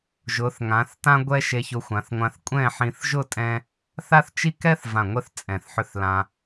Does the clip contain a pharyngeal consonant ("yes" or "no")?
yes